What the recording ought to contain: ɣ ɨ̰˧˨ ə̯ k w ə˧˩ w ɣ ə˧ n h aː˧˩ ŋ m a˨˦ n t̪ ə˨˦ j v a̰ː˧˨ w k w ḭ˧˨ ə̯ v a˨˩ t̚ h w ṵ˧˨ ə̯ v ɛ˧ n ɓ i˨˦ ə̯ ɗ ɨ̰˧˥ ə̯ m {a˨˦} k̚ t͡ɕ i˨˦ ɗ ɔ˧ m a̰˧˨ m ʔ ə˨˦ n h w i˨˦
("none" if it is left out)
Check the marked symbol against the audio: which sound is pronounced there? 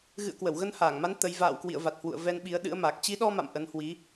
a˨˩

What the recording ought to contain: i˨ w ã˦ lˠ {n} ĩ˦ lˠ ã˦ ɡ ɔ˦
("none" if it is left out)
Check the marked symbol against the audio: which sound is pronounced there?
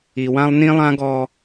n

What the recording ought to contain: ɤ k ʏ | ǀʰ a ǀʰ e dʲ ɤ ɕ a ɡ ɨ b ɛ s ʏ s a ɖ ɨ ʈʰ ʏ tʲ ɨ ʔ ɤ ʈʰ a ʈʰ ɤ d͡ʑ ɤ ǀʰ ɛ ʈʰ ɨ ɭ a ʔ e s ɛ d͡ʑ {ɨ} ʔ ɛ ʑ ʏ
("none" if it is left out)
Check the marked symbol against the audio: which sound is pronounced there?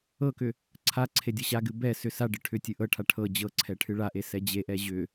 e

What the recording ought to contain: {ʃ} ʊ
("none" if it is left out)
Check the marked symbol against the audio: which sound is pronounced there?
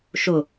ʃ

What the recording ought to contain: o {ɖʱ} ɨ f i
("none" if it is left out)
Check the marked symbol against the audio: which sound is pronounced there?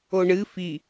ɳ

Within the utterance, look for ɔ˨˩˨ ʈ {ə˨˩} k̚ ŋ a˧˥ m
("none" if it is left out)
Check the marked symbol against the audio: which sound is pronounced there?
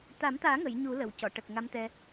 ə˨˩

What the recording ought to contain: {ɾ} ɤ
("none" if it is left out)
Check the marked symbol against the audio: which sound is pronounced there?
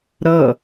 ɾ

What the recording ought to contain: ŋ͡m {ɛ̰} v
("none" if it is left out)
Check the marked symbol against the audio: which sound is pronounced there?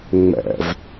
ɛ̰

